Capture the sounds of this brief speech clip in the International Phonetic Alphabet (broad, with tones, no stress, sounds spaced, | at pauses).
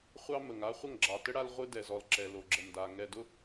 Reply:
χʷ ɑ˦ m ə˨ ŋ a˦ χʷ ə˦˨ ŋ ɡ͡ǁ ɑ˨ t ə˦ ɽ a˦ l ʁʷ ɨ˦ d ɛ˨ z ɔ˨ l ǁ ɛ˨ l o˨ ɡ͡ǁ ə˨ m d a˨ ŋ ɛ˨ d ʊ˦